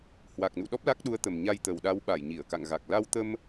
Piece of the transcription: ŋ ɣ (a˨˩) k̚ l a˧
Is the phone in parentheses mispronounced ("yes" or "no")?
no